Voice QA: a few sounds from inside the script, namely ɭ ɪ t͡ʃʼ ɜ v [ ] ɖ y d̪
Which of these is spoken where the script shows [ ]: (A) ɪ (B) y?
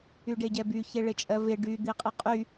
A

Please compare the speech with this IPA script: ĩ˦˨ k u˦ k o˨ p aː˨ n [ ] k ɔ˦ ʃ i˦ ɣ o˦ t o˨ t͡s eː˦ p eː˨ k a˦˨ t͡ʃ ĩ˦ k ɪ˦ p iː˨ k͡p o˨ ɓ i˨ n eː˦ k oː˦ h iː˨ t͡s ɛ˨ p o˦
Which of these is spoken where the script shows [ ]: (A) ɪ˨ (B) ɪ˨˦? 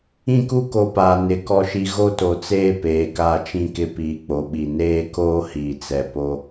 B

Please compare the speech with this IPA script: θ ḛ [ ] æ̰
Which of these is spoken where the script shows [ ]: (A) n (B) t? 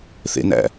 A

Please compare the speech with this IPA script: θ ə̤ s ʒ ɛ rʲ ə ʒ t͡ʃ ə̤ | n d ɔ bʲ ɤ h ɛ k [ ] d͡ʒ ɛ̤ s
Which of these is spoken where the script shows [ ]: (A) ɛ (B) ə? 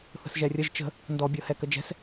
B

